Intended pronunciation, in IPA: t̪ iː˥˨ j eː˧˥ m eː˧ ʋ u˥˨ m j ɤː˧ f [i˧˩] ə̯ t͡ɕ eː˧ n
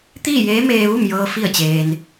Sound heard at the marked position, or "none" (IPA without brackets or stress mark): i˥˨